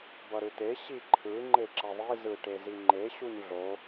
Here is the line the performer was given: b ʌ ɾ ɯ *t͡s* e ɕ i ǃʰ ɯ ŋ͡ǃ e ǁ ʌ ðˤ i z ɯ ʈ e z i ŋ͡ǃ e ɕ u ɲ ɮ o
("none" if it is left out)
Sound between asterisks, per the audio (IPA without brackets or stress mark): t̪